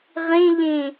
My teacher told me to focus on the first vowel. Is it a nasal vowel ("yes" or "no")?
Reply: yes